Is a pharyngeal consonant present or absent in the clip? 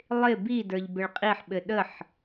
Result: present